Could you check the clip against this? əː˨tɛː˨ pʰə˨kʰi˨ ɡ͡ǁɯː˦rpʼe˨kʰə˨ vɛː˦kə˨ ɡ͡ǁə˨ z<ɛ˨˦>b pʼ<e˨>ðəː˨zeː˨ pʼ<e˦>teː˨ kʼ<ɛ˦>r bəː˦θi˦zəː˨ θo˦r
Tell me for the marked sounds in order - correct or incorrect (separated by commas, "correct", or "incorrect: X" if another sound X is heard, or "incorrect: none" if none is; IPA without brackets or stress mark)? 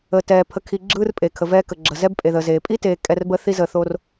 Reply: incorrect: ɛ˦, correct, incorrect: i˦, correct